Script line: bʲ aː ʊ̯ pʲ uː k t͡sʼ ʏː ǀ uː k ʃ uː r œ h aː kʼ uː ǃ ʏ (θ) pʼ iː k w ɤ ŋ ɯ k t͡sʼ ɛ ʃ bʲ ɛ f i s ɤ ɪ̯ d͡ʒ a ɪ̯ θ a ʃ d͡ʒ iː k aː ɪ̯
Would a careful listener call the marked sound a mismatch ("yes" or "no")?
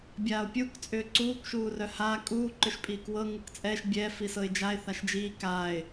yes